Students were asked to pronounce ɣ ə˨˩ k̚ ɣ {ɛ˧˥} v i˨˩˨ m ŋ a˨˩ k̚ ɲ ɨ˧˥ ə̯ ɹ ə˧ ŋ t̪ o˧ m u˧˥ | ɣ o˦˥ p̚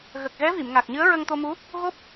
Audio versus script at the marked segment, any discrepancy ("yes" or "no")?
no